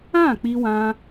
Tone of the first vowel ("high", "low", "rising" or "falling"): falling